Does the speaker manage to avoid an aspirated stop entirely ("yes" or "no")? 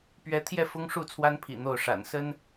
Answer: no